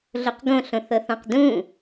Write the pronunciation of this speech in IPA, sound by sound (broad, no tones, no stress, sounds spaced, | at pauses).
ɮ o q ɡ õ ɬ õ θ ɤ θ ɔ̃ q d ũ